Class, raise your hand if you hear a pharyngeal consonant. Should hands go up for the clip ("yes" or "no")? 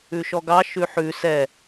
yes